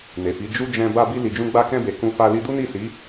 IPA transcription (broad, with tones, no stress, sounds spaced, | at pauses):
n e˨ f i˨˦ d͡ʒ u˧ d͡ʒ ɛ̃˧ b a˧ b i˧ l i˨ d͡ʒ ũ˧ ɡ͡b a˧ k ɛ̃˧ b e˨ k ũ˧ f a˧ l i˧ d u˦ n i˦˨ s i˨˦